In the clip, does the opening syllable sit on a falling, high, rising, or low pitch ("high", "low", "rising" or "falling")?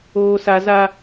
high